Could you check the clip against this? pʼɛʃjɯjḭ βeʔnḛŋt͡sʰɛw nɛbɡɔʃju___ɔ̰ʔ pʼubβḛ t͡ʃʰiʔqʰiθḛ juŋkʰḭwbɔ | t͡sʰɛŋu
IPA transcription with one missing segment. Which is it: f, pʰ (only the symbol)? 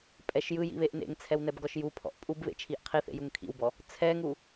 pʰ